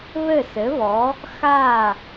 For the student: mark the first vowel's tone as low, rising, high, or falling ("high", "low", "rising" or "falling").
falling